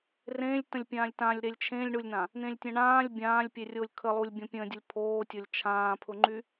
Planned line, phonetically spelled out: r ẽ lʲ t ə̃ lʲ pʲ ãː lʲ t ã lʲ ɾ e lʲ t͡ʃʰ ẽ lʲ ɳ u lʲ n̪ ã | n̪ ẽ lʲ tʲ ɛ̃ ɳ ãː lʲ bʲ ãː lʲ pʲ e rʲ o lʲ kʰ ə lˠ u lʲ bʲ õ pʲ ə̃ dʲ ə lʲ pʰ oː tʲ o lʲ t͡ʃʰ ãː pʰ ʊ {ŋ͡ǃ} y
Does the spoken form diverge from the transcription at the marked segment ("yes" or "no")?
no